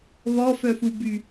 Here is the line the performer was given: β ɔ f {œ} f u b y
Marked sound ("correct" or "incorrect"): correct